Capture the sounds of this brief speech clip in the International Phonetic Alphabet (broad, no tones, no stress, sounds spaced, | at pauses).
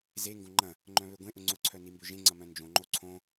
z e ŋ ɡ õ ŋ͡ǃ ɐ̃ | ŋ͡ǃ œ̃ β ø ɡʷ ẽ ʔ ʊ ŋ͡ǀ ʊ ǀʰ œ n i m b ø ʒ ẽ ŋ͡ǀ ɐ m œ̃ n d͡ʒ õ ŋ͡ǃ o ǀʰ õ